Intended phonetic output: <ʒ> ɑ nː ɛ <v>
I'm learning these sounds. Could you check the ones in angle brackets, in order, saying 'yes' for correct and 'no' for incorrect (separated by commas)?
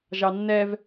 yes, yes